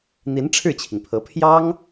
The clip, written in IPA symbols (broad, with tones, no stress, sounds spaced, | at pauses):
n̪ i˧˥ n ʈ͡ʂʰ ɻ̩˥˩ t͡ɕʰ i˩ ŋ pʰ ɤ˧˥ pʰ j ɑ˥ ŋ